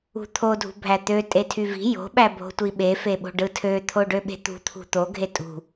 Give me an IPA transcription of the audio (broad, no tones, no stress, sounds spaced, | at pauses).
ṳ t̪ʰ o dʱ ṳ bʱ æ t̪ ø tʼ e tʰ y v i̤ j o̤ ɓ æ bʱ o̤ tʷ i ɓ e f e ɓ o̤ ɖ ɯ tʰ ø t̪ʰ o ɖ ø ɓ e̤ t̪ ṳ t̪ʰ ṳ t̪ o ɡʱ e tʼ ṳ